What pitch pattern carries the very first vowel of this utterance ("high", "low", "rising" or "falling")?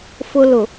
high